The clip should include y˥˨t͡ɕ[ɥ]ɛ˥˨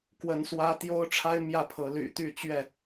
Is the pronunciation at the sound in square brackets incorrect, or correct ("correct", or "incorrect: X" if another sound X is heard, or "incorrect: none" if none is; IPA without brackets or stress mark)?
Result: correct